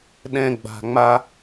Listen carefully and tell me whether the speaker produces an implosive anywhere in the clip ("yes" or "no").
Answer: yes